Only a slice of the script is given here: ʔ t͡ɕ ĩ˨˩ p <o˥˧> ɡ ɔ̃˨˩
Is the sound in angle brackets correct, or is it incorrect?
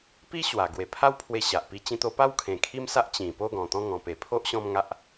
correct